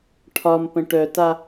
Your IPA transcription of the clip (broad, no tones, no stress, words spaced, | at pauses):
ʈʰɒmpə̃ ʈœta